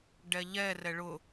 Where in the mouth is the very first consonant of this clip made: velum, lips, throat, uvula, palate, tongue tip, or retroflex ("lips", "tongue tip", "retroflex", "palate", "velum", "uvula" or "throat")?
retroflex